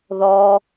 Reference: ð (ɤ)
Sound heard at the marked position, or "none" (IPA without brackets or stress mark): ɔ